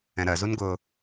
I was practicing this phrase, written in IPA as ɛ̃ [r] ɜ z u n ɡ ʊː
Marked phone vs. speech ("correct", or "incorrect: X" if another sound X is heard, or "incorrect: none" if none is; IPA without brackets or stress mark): incorrect: ɾ